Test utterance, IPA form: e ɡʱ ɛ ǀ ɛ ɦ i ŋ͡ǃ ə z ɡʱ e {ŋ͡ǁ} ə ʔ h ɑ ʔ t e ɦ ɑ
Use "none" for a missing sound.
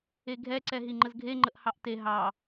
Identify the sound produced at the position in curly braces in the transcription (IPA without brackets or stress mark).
ŋ͡ǃ